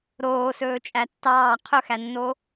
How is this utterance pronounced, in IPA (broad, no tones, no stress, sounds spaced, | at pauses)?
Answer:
ɾ oː s ɵː t͡ʃʼ æ tː ɑː qʰ ɵ x æ nː o